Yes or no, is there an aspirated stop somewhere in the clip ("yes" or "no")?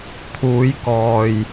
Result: yes